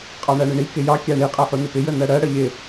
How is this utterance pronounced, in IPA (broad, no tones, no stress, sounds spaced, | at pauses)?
qʼ ɑ ɳ æ ɳ ɪ ɳ i k ɪ j ɑ kʲ æ ɳ i qʼ ɜ ħ u n ɪ p ɪ j ə n ɜ ɽ ɜ ɽ ə ʎ ɪ